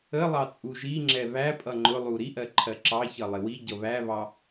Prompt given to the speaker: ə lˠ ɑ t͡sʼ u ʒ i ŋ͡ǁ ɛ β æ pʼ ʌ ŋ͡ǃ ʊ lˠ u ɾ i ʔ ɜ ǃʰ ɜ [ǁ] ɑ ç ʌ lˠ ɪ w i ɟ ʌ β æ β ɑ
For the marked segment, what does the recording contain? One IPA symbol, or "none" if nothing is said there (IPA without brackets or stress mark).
ǁ